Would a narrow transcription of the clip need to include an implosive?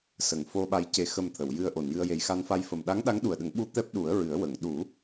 yes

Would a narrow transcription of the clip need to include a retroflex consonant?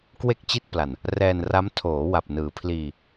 no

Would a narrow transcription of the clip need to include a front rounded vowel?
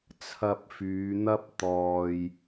yes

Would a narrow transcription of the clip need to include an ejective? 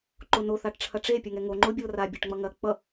no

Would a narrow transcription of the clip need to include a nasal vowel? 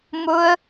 no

